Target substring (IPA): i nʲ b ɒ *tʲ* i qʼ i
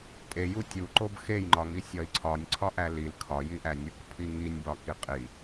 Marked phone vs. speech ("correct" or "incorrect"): incorrect